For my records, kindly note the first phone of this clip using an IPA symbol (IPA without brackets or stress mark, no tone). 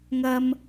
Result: ŋ